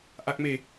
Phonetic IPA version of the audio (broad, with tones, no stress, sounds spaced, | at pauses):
ʔ a˦˥ k̚ m e˧